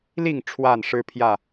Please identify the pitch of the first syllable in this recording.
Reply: falling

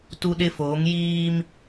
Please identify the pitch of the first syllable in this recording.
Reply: high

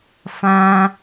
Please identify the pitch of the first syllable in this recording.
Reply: high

